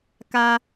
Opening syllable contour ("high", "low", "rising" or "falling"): high